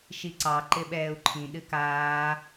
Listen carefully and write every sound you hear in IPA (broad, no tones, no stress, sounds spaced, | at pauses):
ʃ i ǀ ɑ ǃ ɪ ɓ ɛː u̯ ǃʰ ĩ ɗ ɨ k aː